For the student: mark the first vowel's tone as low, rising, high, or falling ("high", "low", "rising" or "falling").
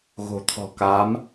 low